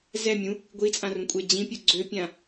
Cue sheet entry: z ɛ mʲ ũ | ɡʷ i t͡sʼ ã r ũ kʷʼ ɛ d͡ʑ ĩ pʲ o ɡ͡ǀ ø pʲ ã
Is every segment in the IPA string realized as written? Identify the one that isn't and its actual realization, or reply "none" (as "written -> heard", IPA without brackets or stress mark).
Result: none